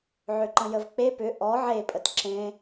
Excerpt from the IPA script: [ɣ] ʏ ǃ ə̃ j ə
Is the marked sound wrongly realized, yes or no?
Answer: yes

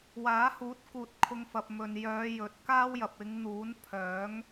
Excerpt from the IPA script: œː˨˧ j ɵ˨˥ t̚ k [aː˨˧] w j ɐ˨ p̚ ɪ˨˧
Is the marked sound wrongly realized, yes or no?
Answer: yes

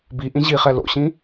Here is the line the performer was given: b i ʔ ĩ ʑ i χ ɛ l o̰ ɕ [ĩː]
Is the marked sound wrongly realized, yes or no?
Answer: yes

